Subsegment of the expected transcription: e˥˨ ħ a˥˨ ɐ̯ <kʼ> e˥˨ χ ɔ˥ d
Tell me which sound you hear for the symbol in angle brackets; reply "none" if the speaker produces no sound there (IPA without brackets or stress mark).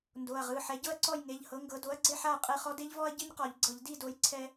qʼ